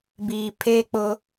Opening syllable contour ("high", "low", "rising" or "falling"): low